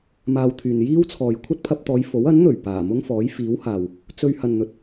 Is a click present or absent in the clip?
absent